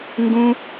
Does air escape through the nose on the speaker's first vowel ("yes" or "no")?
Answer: yes